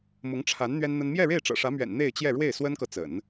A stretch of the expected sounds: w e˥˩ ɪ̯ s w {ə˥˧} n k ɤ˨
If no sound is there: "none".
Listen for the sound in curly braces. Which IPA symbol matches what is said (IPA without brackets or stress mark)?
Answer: ə˥